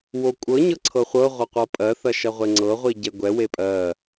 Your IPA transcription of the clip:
w o kʷʼ ɤ ɲ ɤ ǀʰ ɤ χʷ ɤ ʁʷ ɐ qʷ ɤ pʼ ɜ θ ɐ ʃ ɐ ʁʷ e ŋ͡ǀ ɤ ʁʷ i ɟ ɛ ɡʷ ɛ w e pʼ ɜ

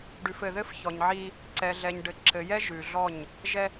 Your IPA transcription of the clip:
ɖ ʉ˨ f ɘ˨ ð ɘ˦ f ç ɔ˨ ɲ ʕ i˦ | ǀ ɛ˨ ɮ ɛ˨ ɲ ɖ ɘ˨ ǁ ɘ˨ j ɛ˦ ʒ ʉ˨ ɮ ɔ˦˨ ɲ | ʒ ɛ˦

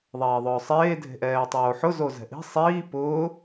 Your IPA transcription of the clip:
ðˤ ɛː ðˤ ʊː sˤ eː dʱ e̤ ʔ ɛː tˤ oː ħ ʊ z o z ɛ̤ ʔ i̤ sˤ iː p ʊː

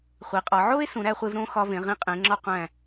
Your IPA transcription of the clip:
χʷ i˩˧ qʼ ɒ˩˧ ʕ o˥ e̯ s ũ˩˧ ɾ æ˧ χʷ e˧ v ɾ õ˥˧ x ɒ˧ v ẽ˩˧ ʁ ĩ˧ qʼ ẽ˩˧ ŋ͡ǁ ɒ˥˧ qʷ æ̃˧˩

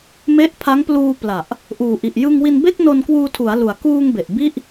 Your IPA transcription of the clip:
m e˦˥ ʔ pʰ a˦˥ ŋ p l uː˧ p l a˨˩ ʔ | ʔ uː˨˩ ʔ i˨˩ ʔ j ɯ˧ ŋ w i˧ n b e˥˩ k̚ n o˧ n k w uː˧ tʰ u˩˦ a̯ l u˨˩ a̯ k uː˧ ŋ b e˨˩ ʔ b i˥˩ ʔ

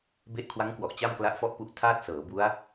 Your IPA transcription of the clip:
b e˦˥ ʔ kʰ w a˦˥ ŋ k w ɔ˨˩ ʔ t͡ɕ a˥˩ m k l a˦˥ ʔ f ɔ˥˩ ʔ p u˦˥ ʔ tʰ aː˥˩ t̚ s ɤː˩˦ b u˦˥ a̯

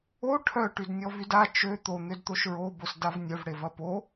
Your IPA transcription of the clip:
o ʈʰ œ ʈ y d nʲ ɔ v y d a t͡ʃ ø t̪ o n̪ ø d t̪ o ʃ ɹ o b o s d a v nʲ œ v ɽ e v ɐ p o

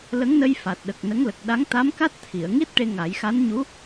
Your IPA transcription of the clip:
l ə˧˥ ŋ n ə˧ j f a˨˩ t̚ ɗ ə˨˩ k̚ n ə˧˥ ŋ l ə˨˩ k̚ ɗ a˧˥ ŋ t̪ a˧˥ m k a˦˥ t̚ t̪ʰ i˨˩˨ ə̯ ŋ i˦˥ t̚ ʈ e˧ ŋ a˨˩˦ j x a˧˥ n ɲ u˧˥

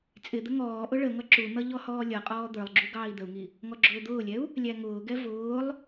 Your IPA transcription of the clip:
t͡sʼ ɪ d̪ ə ŋ ɔː ʔ ʊ ɭ ə ŋ ʌ ǁ u n̪ ʌ ʎ ɔ h ɔː lʲ ʌ qʼ ɔː d̪ ə˞ lˠ ɡ͡ǁ u ɡ ɑː i̯ d̪ ə u̯ ŋ i | ŋ ɔ ɡ͡ǁ ʊː d̪ ʊː lʲ ɛ u̯ | lʲ æ ŋ ʊː ɡ ɛ v ʊː lˠ

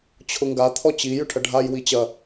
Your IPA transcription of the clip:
t͡ɕʰ ʊ ŋ ɡ a t̪ʰ ɔ t͡ɕ i j ʏ ʈʰ ɐ ɖʱ a j w i t͡ɕ ɐ

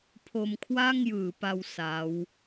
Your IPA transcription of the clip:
pʰ o˧ m kʰ w a˥˩ ŋ j ɯː˩˦ p a˧ w s a˦˥ w

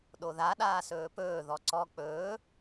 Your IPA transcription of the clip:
ɗ o ð a ɗ aː s ɵː p ɵː ð ɔ ǀ ɔ k͡p ɵː

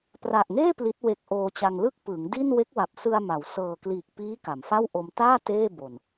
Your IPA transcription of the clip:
p r a˨˩ ʔ ŋ eː˥˩ p l i˦˥ t̚ w e˦˥ k̚ ʔ oː˧ t͡ɕ a˧ ŋ l ɯ˥˩ k̚ p ɯː˩˦ ŋ d i˥˩ n w e˦˥ k̚ w a˨˩ p̚ s ɯ˧ a̯ m a˩˦ w s ɤː˨˩ k l iː˨˩ k̚ p iː˦˥ k a˩˦ m f a˥˩ w ʔ o˧ m t aː˥˩ t eː˥˩ b o˨˩ n

